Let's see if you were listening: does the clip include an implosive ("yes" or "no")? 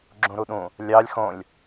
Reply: yes